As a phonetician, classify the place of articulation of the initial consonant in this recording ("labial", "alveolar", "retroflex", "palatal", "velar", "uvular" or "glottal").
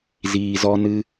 alveolar